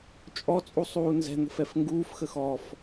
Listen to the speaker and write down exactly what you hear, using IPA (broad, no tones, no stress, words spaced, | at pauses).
t͡ʃʼɔt͡sʼu sˤuːnzɛ̤n̪ə̤f ɛfŋɡuːfxə xɔf